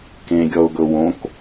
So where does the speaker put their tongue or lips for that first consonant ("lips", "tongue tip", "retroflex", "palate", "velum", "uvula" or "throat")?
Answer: velum